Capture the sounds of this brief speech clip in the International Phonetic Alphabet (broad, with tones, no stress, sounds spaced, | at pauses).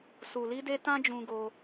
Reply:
s u˨ l i˧ d e˧ t ã˦ d͡ʒ ũ˧ ɡ o˧